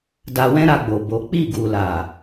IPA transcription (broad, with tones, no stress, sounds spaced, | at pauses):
d a˧ w ɛ̃˦ ɾ a˧ ɡ͡b o˨ b o˨˦ k͡p i˦˨ ɡ u˨ l a˨